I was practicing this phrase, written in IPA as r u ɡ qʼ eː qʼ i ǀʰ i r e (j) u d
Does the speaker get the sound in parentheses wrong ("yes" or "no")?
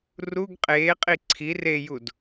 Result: no